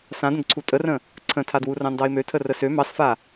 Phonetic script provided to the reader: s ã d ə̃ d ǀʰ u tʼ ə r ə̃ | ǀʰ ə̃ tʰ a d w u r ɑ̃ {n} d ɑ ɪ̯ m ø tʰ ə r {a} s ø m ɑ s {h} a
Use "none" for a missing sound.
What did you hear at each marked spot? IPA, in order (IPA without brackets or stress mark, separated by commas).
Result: n, ə, f